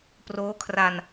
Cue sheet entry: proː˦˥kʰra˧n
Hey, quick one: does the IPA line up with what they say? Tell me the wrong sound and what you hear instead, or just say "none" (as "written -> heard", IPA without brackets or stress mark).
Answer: none